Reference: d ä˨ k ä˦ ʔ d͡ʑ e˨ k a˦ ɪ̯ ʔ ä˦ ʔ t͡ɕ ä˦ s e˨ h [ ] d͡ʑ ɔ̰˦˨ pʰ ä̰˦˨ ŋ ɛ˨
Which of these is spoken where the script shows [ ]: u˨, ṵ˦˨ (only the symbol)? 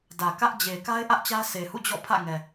ṵ˦˨